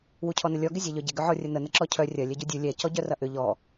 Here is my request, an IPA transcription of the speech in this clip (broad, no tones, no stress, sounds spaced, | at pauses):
w u cʰ ɔ n ə lʲ ɔ ɡ ɪ zʲ ɛ ʎ œ ɟ ɪ ɡ ʏ ʕ ɔ rʲ ə n ə n ə ǁ ɔ cʰ œ rʲ ɐ lʲ ɛ ɟ u dʲ u lʲ ɛ c ɔ ɟ œ r ɐ ʔ ʏ ʎ ɔ